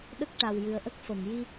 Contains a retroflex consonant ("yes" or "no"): yes